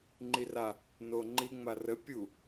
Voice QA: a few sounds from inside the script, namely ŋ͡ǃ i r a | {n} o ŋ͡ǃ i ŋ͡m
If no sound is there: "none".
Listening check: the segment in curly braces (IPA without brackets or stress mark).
n